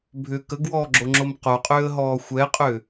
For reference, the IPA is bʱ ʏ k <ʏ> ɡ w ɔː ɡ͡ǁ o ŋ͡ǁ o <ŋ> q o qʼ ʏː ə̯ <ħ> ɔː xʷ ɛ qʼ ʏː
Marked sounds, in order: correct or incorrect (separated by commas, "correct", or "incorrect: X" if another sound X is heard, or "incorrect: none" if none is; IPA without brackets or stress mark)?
incorrect: ə, incorrect: m, incorrect: ɦ